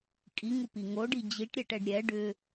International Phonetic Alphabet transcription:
kʼ i ŋ u p i ŋ o ɖ i d͡ʑ i ʈ ɾʲ ɛ ʈ ɛ ɖ ɾʲ ɛ ɖ ʏ

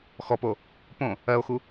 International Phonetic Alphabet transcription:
x ɔ p o | p õ | ɜ o̯ x u

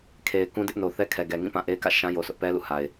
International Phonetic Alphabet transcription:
kʰ e˨ ɪ̯ k ũ˦ d ɪ˦ ʔ n o˨ θ ɛ˦ kʰ ɛ˨ ɡ ɛ˨ ŋ ĩ˦˨ p ã˦˨ ʔ e˦ ɪ̯ k ä̰˦˨ ʃ ã˦ j o˨ sʰ ʊ˦ ʔ p ɛ˦ l ṵ˦˨ h a˨ ɪ̯

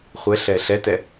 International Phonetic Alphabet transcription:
χʷ ɛ ɬ ɛ ɬ ɛ t ɛ

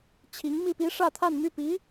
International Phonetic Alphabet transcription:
t͡ɕʰ i˧˥ ŋ m i˥˩ p i˥ ʂ ä˥˧ t̪ʰ a˥˧ n m y˥˩ p i˧˥

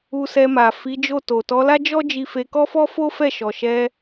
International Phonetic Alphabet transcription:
u˧ s ɛ˧ m a˨ f i˨˦ d͡ʒ o˦˨ t o˨ t ɔ˨˦ l a˦ d͡ʒ ɔ˦ d͡ʒ i˧ f e˧ k ɔ˦ f ɔ˦ f o˦ f ɛ˦˨ ʃ ɔ˨ ʃ ɛ˧

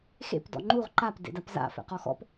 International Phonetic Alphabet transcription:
x ḛ p d ɔ̰ ŋ͡ǃ u ʁ ǃ a p d ḛ d a p z a̰ f ɛ̰ q ɔ x ɔ̰ p

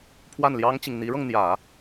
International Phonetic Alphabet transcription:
pʰ w a˥˩ n l j ɑ˥ ŋ t͡ɕ i˨ ŋ n̪ i˧˥ ɻ ɤ˧ ŋ n̪ j ä˨˩˦

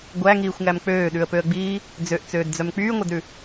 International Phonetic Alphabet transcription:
ɡʷ æ ŋ iː xʷ ŋ æ m k͡p øː ɗ ʉ ə̯ p ø ə̯ ɡ͡b iː | d͡z ø ʔ t͡s øː d d͡z œ m k͡p yː ŋʷ æ d ɾ ʉ

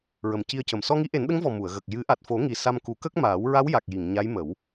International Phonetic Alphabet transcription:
ɹ ə˨˩ m c i˧ ə̯ c ə˨˩ m s ɔ˧ ŋ i˧˥ ʔ e˨˩˦ n ɗ ə˧˥ ŋ v ɔ˨˩ m u˨˩˨ ə̯ ɣ ə˨˩ k̚ j ɨ˨˩˦ ʔ a˨˩ t̚ f o˨˩˦ ŋ i˨˩ s a˧ m k u˨˩˦ k ə˦˥ k̚ m aː˨˩˦ w ɹ a˧˥ w j a˨˩ k̚ j i˨˩˨ ŋ ɲ a˧˥ j m ə˨˩˦ w

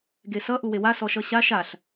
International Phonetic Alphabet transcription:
ɡ e s ʌ ʔ u w e w a s ɔ ʃ ʌ ɕ a ʃ a ɬ

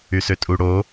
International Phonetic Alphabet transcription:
y s ø tʼ u ɽ o

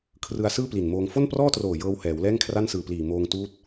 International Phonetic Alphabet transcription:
kʰ r ɯ˧ a̯ s ɯː˥˩ p l i˨˩ n m oː˧ ŋ f o˥˩ n p r ɔː˥˩ t r oː˨˩ j ɤː˧ w h ɛː˩˦ w l ɛː˥˩ ŋ kʰ r a˥˩ n s ɯː˨˩ p l iː˨˩ m oː˧ ŋ t uː˦˥ t̚

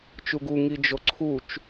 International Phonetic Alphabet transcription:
t͡ʃ u ɡ u ŋ i d͡ʒ o ǀʰ u t͡ʃ

